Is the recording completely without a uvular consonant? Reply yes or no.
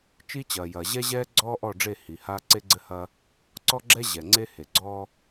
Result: yes